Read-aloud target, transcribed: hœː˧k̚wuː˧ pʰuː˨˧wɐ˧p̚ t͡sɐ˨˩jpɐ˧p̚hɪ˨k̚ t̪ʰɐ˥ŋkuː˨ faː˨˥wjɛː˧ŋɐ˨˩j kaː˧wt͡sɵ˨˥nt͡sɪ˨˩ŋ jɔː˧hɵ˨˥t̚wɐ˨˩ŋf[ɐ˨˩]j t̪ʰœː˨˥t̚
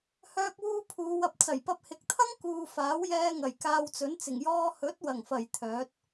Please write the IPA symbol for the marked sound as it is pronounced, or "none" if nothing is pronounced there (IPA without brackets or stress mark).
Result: ɐ˨˩